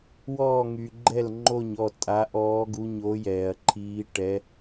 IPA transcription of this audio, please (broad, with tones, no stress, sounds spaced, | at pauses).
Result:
w ɔː˥˨ ŋ y˨ ɡ͡ǃ ɛ˥˨ l ŋ͡ǃ o˥˨ ɲ ɔ˥˨ tʼ a˧˥ ʔ ɔː˧˥ ɡ u˧˥ ɲ o˧˥ j ɛː˨ ɐ̯ ǃʰ iː˧˥ ʈ ɛ˧˥